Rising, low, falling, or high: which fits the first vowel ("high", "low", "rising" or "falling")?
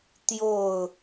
falling